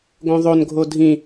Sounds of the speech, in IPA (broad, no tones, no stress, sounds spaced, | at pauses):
ɡ õ ðˤ o n ɡʱ o dʱ ĩ